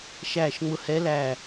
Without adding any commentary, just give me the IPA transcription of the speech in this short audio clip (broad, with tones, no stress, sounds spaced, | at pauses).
ʃ æː˦˨ ʃ ŋ͡m ʊ˦˨ h ɛ˦˥ l æ˦˨